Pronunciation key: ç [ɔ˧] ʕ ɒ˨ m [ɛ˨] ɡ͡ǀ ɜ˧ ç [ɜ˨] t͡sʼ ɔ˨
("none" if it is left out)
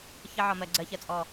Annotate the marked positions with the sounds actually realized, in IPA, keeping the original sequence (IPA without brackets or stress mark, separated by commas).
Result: ʌ˧, ɜ˨, ɜ˧